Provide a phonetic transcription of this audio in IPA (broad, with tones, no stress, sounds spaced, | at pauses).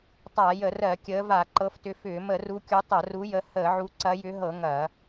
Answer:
tˤ a˧˩˧ j ə˧˩˧ r ɜ˧˩˧ kʲ əː˨˦ v a˧˩˧ ǃ ɤ˨˦ f t ʏ˨˦ f ʏː˧˩˧ m ə˧˩˧ r u˨˦ kʲ u˨˦ tˤ ɐ˧˩˧ r u˨˦ j ə˨˦ h əː˧˩˧ ʕ u˨˦ ǀ ɐ˨˦ j ʏ˨˦ ɦ ɤ˧˩˧ ŋ ɐ˧˩˧